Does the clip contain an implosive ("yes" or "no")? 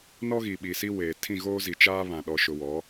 yes